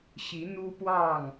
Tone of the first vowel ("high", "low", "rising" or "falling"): rising